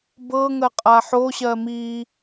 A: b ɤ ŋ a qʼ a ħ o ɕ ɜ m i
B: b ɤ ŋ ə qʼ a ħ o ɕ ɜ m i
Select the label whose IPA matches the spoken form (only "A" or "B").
B